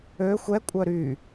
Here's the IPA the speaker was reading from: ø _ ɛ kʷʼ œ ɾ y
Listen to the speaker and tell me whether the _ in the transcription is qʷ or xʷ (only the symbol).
xʷ